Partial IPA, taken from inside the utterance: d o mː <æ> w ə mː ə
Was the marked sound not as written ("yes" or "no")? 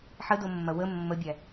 yes